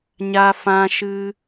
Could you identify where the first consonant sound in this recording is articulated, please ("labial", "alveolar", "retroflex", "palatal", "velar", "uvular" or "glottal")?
palatal